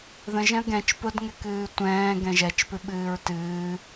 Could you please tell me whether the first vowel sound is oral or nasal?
nasal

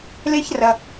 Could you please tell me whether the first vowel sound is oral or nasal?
oral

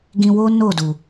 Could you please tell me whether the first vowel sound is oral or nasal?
nasal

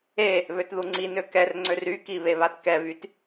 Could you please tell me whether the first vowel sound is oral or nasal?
oral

